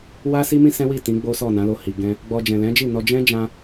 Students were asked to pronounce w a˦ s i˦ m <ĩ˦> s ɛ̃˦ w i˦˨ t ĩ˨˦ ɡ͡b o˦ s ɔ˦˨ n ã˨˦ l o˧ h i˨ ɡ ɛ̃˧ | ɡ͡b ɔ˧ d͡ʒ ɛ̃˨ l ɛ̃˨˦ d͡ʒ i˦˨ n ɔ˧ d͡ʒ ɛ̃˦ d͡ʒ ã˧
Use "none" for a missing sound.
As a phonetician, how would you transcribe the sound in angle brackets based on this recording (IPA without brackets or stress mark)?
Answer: ĩ˦